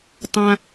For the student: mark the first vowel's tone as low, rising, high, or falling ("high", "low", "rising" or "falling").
high